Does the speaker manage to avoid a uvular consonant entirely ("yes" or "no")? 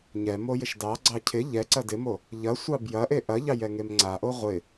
no